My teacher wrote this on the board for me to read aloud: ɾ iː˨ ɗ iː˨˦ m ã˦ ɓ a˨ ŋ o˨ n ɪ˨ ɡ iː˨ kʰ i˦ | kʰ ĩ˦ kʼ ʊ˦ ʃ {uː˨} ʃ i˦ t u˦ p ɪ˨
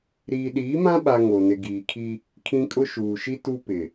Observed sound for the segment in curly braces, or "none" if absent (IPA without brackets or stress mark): uː˨